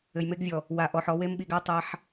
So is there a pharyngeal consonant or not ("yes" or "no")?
yes